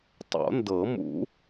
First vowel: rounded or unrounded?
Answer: rounded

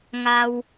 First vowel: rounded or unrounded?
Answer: unrounded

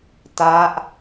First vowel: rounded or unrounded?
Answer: unrounded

